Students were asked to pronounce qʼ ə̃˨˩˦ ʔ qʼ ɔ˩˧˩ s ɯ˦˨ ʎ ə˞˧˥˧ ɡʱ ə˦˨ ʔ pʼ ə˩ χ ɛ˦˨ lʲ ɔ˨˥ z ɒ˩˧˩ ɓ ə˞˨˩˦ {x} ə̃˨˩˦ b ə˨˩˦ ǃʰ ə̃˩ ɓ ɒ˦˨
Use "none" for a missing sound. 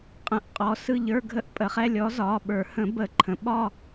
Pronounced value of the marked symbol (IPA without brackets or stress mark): h